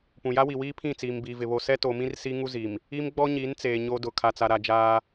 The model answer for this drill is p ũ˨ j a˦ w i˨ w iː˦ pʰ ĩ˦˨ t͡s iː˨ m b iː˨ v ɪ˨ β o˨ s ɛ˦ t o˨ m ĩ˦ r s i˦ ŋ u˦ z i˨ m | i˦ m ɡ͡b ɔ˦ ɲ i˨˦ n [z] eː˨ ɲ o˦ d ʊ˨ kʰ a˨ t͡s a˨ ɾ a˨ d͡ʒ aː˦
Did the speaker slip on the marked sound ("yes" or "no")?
yes